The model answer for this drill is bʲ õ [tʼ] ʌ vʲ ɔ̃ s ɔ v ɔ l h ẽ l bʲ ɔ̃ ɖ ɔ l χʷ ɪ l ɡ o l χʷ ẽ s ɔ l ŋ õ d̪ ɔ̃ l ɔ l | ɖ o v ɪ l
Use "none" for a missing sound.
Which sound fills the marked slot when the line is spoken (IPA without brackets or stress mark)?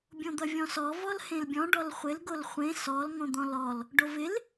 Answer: d̪